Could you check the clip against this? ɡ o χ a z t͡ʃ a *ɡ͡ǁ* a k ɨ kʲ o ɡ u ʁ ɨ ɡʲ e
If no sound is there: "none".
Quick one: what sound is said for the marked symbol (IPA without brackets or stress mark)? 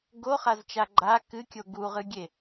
ɡ͡ǃ